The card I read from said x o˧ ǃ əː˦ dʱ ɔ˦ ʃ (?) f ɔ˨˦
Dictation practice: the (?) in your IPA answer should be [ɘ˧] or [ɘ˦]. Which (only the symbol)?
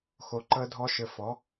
ɘ˧